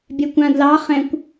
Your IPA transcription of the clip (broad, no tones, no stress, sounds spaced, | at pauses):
bʲ ɛ kʷ ã d l ɑ χ ɛ̃ kʷ